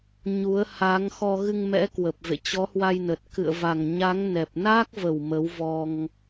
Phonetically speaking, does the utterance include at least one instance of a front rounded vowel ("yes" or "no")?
no